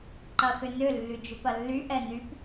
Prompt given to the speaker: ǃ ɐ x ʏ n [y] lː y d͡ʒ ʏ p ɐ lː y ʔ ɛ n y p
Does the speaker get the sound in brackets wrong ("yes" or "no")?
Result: yes